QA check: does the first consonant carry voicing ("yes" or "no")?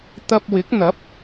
no